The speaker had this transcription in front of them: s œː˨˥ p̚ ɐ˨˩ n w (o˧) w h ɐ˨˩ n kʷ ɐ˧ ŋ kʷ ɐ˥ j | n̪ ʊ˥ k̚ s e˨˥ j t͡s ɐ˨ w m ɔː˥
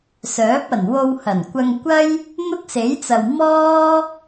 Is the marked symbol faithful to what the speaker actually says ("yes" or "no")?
yes